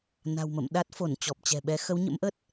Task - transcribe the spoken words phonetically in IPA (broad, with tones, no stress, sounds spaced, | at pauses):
n a̤˨˩ w m ə̰˧˨ m ɗ a˦˥ t̚ f o˧˩ n t͡ɕ ɔ˨˩ p̚ t͡ɕ ɛ̤˨˩ ɓ ɛ˨˦ x ə˨˦ w ɲ ə̰˧˥ m ʔ ə˦˥ t̚